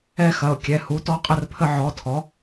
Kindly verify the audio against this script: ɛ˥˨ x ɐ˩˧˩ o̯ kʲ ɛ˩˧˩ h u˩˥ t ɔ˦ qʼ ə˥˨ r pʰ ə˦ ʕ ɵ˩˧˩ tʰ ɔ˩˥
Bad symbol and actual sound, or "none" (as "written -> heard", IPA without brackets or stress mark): ɵ˩˧˩ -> ɔ˩˧˩